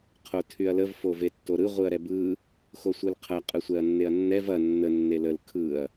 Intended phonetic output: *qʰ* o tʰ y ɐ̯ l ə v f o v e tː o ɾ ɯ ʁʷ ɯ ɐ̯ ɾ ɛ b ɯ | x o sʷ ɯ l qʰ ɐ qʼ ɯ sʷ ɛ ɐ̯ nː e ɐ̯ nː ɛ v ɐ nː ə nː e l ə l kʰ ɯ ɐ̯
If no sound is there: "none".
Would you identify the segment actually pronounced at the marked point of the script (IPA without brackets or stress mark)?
qʰ